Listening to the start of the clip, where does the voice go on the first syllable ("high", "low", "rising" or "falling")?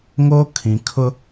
high